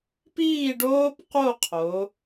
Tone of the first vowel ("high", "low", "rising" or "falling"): falling